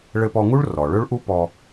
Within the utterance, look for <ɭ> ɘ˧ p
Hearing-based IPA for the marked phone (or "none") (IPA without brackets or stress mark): ɭ